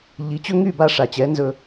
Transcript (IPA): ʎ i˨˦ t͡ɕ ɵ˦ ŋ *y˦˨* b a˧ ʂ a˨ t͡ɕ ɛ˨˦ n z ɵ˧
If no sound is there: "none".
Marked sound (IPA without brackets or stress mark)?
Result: y˦˨